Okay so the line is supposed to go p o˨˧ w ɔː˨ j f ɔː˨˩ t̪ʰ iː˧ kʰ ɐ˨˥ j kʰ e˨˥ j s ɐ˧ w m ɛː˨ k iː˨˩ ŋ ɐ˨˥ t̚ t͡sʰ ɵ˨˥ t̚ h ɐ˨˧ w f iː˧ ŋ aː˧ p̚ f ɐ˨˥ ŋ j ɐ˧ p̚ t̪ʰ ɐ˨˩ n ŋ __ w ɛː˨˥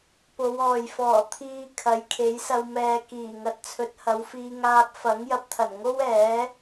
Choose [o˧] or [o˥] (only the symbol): o˥